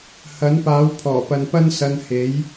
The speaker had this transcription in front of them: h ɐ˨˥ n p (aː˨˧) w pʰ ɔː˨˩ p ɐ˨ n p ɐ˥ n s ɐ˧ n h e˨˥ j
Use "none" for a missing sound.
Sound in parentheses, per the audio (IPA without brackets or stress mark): aː˨˥